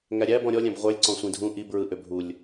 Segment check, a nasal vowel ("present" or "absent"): present